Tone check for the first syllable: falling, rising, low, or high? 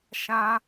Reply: high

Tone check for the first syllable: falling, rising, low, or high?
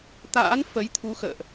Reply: rising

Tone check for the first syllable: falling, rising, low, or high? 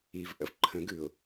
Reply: low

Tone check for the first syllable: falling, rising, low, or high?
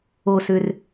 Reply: low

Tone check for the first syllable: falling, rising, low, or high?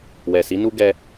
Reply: low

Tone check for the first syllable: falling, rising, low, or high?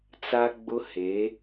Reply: high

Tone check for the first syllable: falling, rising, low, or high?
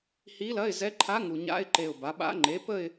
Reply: rising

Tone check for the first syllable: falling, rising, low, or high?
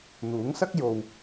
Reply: rising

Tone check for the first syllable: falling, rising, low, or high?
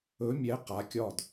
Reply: rising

